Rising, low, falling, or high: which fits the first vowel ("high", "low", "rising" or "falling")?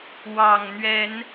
low